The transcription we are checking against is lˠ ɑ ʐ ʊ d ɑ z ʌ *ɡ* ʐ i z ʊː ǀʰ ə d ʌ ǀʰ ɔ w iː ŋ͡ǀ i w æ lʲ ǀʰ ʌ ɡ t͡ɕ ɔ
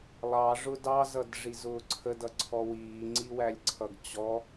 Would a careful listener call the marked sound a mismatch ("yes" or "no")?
yes